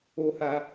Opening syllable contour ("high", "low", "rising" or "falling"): high